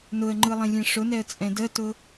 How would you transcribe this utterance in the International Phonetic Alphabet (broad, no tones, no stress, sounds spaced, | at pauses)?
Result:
n ʊ ə̯ ŋ͡ǃ ɯ lˠ ẽ lʲ ẽ ʂ ʊ n ɛ ə̯ t͡sʼ ɛ̃ d ə t ʊ